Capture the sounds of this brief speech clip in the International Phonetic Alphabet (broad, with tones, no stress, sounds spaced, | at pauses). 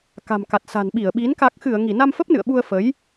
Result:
k a̤˨˩ m k a˨˩ t̚ s a̤˨˩ n ɓ i˧˩ ə̯ ɓ i˨˦ n k a˨˩ k̚ x ɨ˧˩ ə̯ ŋ i˧˩ n a˧ m f ə˦˥ p̚ n ɨ̰˧˨ ə̯ ɓ u˧ ə̯ f ə˨˦ j